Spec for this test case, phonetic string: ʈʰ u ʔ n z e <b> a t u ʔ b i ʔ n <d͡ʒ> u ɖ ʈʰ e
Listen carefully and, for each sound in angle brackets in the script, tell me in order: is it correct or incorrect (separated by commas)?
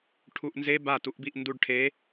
correct, incorrect